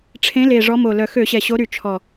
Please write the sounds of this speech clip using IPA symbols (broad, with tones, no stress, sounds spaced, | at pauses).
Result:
ʈ͡ʂʰ ẽ˨˦ l e˨˩ ʐ ɔ˨˦ m o˨˩ l œ˨˩ x ø˧˩˧ ɕ ɛ˨˩ ɕ o˨˦ ɾ y˨˩ t͡ʃʰ ɔ˨˩